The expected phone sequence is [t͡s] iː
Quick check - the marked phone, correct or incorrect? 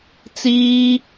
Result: correct